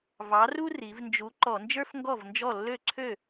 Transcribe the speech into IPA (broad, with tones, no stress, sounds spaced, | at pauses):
v ɑ˨˥ r u˥ r i˩˧ v n d͡ʒ u˨˥ ǃ ɔ˧˩˧ n d͡ʒ ə˞˥ f ŋ ɡ ɔ˥˩ v n d͡ʒ ɔ˥˩ lː ø˥˩ ǀʰ ø˥˩